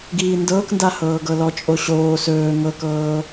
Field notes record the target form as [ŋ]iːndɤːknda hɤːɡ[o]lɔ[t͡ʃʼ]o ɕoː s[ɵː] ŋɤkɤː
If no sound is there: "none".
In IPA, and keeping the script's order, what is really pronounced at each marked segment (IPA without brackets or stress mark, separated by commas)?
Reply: ɡ, ɤ, t͡ʃʼ, ɵː